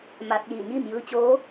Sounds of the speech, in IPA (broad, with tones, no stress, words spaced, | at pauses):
ma˧t̚ jiː˧˩ɲiː˥˨mjɯː˧ t͡ɕoː˧˥